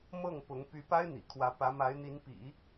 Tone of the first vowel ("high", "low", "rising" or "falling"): falling